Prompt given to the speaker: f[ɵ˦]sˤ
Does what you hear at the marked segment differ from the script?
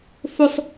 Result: no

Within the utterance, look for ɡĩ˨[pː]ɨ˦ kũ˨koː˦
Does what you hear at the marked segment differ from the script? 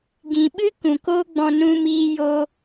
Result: yes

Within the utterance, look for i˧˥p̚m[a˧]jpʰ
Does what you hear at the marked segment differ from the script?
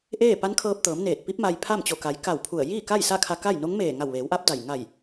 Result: no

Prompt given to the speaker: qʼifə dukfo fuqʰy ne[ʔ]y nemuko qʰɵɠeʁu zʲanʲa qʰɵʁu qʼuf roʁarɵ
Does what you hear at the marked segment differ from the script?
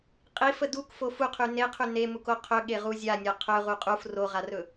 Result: yes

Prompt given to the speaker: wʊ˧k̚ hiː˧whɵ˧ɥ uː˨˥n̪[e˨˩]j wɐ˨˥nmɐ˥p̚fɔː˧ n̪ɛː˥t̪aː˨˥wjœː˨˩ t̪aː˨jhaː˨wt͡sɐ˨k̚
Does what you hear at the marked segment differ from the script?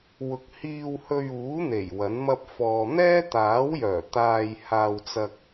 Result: no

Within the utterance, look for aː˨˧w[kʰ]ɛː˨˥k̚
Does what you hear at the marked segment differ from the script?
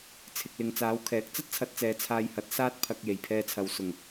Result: no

